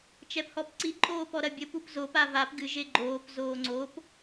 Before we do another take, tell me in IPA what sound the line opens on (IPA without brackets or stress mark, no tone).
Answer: t͡ʃ